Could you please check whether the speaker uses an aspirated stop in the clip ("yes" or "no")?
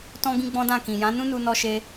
no